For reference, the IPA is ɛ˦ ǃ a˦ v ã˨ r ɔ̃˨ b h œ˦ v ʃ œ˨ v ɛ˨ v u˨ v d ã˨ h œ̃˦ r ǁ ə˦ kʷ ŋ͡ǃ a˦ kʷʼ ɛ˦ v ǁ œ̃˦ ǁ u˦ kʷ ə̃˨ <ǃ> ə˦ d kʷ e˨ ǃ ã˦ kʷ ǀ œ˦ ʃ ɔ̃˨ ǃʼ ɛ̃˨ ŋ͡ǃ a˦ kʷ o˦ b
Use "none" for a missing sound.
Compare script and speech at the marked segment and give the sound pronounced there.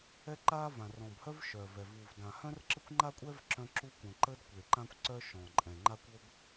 ǃ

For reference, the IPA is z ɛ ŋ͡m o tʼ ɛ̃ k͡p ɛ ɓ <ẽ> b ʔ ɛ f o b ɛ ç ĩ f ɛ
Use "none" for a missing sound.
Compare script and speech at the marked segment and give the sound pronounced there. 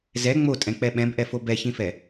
ɛ̃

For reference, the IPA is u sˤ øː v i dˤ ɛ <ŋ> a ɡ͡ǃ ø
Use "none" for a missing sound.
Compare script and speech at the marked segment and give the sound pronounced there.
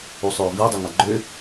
ŋ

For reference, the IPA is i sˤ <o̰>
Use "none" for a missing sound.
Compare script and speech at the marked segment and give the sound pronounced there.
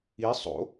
o̰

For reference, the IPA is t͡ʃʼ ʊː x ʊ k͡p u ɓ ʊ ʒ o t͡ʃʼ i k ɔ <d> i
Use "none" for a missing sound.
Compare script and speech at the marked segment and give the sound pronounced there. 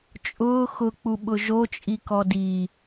d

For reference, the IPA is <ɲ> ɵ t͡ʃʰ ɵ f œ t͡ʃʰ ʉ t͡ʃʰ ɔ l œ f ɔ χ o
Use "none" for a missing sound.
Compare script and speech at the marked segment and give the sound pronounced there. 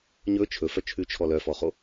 ɲ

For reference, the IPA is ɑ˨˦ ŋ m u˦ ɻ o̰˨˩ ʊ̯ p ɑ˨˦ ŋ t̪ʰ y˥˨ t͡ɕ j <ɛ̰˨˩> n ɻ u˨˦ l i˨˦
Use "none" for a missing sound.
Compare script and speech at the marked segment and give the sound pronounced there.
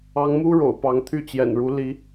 ɛ̰˨˩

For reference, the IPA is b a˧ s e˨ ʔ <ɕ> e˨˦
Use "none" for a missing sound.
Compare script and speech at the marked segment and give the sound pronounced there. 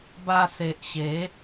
ɕ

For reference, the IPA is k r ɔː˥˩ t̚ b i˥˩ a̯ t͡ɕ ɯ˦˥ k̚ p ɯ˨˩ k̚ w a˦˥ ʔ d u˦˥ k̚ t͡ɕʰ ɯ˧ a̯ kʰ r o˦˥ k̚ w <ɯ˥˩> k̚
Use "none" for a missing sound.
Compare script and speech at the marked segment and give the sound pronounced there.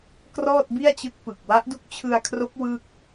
ɯ˥˩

